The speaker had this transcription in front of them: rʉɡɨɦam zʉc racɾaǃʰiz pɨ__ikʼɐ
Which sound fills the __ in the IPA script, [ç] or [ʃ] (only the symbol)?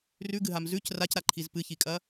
ç